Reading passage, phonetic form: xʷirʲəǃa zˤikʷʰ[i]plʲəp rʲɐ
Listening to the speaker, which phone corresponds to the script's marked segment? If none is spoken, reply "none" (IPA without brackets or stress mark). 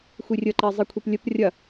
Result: i